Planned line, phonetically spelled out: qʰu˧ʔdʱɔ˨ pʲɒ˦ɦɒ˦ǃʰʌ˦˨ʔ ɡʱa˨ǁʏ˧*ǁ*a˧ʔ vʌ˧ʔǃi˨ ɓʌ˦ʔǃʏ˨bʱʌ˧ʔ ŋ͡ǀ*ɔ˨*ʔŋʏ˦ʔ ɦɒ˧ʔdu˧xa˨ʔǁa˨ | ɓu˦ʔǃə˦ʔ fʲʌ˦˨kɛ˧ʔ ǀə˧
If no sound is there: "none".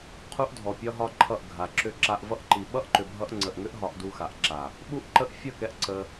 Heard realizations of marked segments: ǁ, ə˨

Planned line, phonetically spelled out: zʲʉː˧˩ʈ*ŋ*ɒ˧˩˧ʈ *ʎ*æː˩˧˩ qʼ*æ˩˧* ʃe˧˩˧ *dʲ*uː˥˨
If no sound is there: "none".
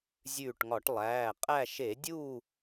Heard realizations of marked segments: ŋ, lˠ, æ˥˨, dʲ

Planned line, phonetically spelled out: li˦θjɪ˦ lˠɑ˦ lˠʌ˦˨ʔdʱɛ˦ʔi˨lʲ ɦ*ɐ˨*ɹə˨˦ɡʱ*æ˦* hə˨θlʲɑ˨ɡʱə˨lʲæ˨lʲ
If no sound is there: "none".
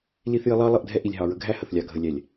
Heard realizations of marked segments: ɑ˨, æ˦

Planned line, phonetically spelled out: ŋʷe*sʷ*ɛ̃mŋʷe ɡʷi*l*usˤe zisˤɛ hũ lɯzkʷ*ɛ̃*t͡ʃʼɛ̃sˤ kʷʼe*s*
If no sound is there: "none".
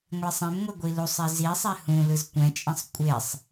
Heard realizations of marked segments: sˤ, l, ɛ̃, sˤ

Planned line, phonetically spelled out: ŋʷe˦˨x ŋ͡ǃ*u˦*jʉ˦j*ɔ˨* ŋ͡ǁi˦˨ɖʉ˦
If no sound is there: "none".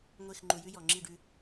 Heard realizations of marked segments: u˨, ɔ˨

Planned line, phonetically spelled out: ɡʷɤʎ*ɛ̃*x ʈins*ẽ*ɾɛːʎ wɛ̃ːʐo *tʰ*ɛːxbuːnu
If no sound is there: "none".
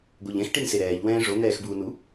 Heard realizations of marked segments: ɛ̃, e, n̪

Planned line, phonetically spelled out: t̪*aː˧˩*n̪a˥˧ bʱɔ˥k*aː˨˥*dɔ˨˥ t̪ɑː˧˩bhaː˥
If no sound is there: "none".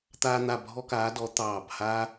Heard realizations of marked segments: aː˥, aː˨˥

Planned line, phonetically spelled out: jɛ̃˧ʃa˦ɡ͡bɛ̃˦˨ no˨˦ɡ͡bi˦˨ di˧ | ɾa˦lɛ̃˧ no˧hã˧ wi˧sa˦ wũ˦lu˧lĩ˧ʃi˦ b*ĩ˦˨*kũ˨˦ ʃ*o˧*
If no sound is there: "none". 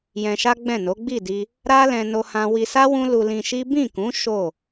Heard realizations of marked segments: ĩ˦˨, o˦˨

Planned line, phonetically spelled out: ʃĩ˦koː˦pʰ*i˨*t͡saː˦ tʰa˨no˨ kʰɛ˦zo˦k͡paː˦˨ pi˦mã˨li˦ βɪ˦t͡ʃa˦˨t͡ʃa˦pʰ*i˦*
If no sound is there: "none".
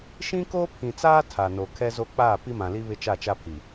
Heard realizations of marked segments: ĩ˨, i˨

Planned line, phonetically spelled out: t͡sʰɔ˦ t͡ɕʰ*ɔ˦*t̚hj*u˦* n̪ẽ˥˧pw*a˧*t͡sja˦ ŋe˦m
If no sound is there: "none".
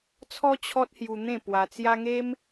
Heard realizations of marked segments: ɔ˦, u˧, a˧

